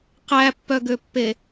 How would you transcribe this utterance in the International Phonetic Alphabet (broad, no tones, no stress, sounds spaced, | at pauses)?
q æ pː œ ɡ ø pː e